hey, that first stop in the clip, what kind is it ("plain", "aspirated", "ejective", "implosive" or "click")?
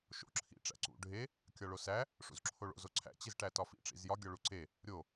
click